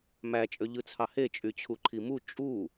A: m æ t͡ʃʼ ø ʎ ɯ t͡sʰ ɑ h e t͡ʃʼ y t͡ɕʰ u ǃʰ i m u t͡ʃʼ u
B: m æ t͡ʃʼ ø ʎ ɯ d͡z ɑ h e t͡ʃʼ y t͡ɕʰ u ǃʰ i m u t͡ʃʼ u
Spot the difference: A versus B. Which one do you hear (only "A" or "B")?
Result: A